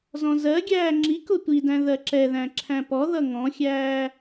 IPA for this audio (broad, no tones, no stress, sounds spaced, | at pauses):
z ɔ̃ z ɜ ɡʲ æː ŋ͡ǁ i k ʊ tʷ i d æ̃ ð ɜ ǁ ɛ ð æ̃ ǁʰ æ̃ p ɔ ð ʌ ŋ ɔ̃ xʲ æː